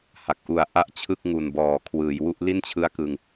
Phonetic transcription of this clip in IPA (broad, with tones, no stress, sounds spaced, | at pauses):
h a˨˩ k̚ ʔ u˨˩ a̯ ʔ a˥˩ ʔ t͡ɕʰ ɯ˥˩ k̚ ŋ u˨˩ n b ɔː˨˩ kʰ w ɯː˩˦ j w u˦˥ ʔ l i˥˩ n t͡ɕʰ ɯ˦˥ a̯ k ɯ˧ ŋ